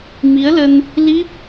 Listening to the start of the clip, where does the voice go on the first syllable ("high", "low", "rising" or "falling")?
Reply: rising